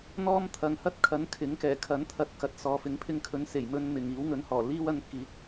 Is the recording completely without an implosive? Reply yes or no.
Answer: yes